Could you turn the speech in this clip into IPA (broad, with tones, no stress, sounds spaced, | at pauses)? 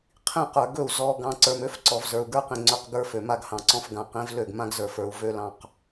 qʰ ĩ˦˨ q ə˞˨ ɡ ɵ˦˨ u̯ z ɔ˨ ɡ ɑ̃˨ ǀ ə˞˨ m ø˨˦ f ǀ ɔ˨ v z ə˞˨ u̯ ɡ ə˞˦ q ĩ˨ ŋ͡ǀ ø˦ q ɡ ə˞˦ f ø˨ m a˦ ɡ h ɑ̃˨ ǀ ɔ̃˦ f ɡ ã˨ q ĩ˨˦ v l ø˦˨ ɡ m ã˦ ɡ z ə˞˨ f ə˞˨ u̯ v ø˦ l ɑ̃˦˨ q